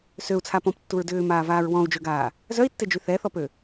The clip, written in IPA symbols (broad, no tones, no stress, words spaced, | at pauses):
søu̯t͡sʰa pɔ̃ptːuɹ dʏːmaːvaːɹ wɔ̃u̯ d͡ʒøɡaː | zœi̯tːed͡ʒy θɛθɔpø